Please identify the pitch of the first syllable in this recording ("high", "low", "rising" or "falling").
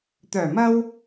low